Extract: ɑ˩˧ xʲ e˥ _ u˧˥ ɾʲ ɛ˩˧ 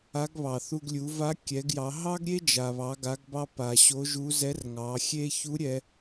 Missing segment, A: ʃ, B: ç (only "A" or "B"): B